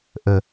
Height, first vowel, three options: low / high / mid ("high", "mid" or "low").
mid